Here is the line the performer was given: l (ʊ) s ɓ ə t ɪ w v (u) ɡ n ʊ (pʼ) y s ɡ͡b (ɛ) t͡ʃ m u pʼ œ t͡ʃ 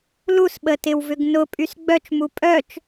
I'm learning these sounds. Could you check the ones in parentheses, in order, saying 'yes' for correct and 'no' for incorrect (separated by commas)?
no, no, yes, no